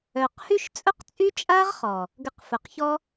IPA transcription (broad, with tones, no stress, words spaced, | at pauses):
œ˨qhy˦ʃ t͡sʼʊ˦qt͡sʼy˦t͡ʃʼa˦ʁ χɔ˨ | ɡə˧qfʊ˨qçɔ˦